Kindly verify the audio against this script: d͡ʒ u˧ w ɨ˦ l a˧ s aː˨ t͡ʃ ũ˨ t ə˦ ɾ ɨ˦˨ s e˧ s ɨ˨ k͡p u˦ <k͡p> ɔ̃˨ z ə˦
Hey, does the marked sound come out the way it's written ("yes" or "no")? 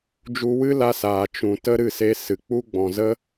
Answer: no